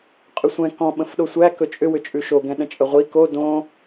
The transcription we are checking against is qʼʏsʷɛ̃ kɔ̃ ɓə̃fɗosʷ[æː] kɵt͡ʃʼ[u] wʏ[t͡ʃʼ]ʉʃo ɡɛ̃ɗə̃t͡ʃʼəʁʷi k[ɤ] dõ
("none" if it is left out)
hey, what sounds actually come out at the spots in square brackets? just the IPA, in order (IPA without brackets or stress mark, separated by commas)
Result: æ, ʏ, t͡ʃʼ, o